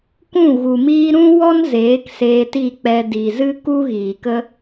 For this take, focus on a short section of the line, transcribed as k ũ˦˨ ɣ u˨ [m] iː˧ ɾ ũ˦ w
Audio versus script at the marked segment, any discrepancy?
no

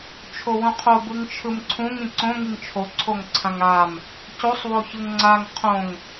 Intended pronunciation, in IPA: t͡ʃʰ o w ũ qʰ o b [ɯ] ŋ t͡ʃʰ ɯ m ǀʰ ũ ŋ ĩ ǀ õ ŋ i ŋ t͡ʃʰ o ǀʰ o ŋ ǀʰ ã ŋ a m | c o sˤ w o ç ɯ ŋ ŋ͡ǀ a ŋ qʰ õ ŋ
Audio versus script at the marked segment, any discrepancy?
no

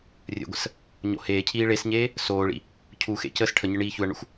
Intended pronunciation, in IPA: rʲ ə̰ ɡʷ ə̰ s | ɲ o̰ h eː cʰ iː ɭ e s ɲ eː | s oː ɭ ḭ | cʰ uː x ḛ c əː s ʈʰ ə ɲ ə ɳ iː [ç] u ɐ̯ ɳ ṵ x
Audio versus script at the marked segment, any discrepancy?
no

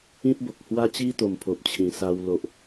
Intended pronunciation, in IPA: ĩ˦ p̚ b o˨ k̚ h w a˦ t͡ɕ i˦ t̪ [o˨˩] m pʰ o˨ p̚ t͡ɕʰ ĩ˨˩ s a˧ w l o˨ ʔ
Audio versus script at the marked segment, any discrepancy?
no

